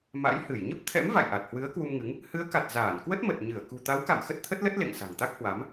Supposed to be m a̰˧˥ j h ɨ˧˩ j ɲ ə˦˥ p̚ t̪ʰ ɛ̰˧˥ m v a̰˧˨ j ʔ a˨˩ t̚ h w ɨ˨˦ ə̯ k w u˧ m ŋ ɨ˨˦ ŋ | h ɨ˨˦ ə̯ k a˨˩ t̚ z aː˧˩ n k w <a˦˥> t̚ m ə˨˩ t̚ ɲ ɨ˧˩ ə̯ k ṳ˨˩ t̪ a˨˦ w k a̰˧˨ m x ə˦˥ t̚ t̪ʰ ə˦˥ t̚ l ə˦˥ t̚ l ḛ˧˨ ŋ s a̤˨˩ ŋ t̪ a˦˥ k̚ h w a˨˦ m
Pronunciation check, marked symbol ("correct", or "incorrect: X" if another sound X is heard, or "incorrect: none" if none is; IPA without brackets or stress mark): incorrect: ə˦˥